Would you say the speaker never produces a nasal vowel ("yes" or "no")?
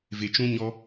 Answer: no